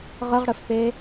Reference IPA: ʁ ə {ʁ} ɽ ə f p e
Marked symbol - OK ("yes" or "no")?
yes